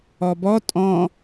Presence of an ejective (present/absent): present